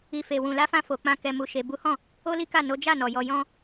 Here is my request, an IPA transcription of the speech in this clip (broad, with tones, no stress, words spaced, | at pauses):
i˨fe˨ wũ˨la˨˦fã˧ fo˨k͡pã˧ kɛ˨mu˨ ʃe˨bu˨˦hɔ̃˦˨ | o˦li˦ka˦˨ no˨˦d͡ʒa˦˨nɔ˨jɔ˧ jɔ̃˧